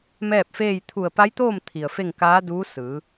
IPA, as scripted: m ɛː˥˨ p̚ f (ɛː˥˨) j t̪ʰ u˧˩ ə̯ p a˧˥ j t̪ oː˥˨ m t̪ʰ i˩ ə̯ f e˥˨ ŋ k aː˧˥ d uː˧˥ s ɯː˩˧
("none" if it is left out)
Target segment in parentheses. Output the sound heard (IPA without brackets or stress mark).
eː˥˨